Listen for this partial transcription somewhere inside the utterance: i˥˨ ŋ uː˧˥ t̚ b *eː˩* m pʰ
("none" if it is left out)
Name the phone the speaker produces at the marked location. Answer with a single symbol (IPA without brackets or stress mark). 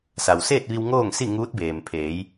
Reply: eː˩